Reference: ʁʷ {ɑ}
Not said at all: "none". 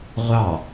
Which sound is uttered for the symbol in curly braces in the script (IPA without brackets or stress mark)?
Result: ɑ